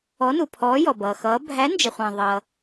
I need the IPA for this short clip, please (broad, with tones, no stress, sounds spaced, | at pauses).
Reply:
ɔ˨˦ n u˩ pʰ ɔː˨˦ j ɔ˩ b ʌː˩ x ʌː˨˦ bʱ æ˨˦ n d͡ʒ ə˩ χʷ æ̃˩ ðˤ ʌ˩